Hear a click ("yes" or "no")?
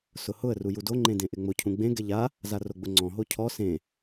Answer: yes